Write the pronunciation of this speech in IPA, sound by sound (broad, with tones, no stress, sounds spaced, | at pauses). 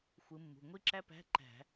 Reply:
xʷ ɯ˨˦ mː ṳ˩˧˩ ŋʷ i˥ ǁ æ˥ p æ̤˧˥˧ ǃ æ̤˧˩˧